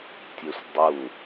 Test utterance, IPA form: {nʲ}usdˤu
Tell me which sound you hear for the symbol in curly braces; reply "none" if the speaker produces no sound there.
tʲ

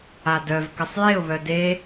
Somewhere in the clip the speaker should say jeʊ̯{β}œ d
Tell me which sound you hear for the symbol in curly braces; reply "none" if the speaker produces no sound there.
β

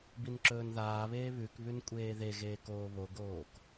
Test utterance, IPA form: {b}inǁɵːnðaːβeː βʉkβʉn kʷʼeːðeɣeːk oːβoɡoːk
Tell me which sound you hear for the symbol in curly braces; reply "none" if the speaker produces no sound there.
b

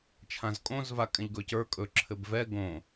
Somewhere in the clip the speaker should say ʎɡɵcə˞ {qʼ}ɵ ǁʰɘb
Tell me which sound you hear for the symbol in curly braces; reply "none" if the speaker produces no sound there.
kʼ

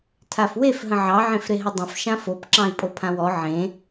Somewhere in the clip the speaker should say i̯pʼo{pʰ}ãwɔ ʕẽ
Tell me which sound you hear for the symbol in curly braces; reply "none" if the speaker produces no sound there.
pʰ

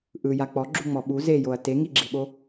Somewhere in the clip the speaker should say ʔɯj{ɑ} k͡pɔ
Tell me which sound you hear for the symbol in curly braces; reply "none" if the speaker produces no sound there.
a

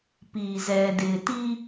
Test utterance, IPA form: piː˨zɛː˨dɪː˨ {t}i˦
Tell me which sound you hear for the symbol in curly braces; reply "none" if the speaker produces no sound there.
t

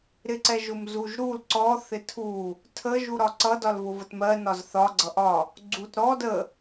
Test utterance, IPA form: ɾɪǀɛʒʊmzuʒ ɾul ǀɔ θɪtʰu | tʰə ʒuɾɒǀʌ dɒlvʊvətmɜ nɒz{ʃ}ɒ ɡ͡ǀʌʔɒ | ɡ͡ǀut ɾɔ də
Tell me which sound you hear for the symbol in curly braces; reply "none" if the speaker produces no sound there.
θ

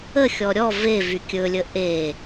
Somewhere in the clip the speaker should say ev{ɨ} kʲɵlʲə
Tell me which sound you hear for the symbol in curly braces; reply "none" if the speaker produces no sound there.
y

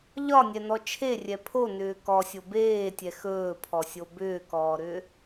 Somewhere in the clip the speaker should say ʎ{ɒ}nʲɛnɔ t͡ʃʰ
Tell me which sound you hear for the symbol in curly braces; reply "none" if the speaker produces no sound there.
ɒ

